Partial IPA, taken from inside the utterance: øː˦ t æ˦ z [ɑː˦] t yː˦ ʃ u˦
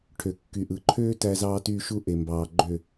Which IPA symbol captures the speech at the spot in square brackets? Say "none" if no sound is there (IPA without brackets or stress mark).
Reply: ɑː˦